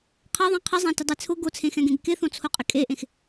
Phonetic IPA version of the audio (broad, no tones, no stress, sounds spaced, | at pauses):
qʰ a ðˤ ɛ̃ qʰ ɪ zˤ ã t ɪ dˤ e t͡sʰ ʊ ɡ o t͡sʰ ẽ x ɛ̃ ɡ ẽ ɡ k ɪ θ õ t͡sʰ o qʼ ɪ kʼ e ʔ ẽ x